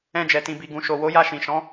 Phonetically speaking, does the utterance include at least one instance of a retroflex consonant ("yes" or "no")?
no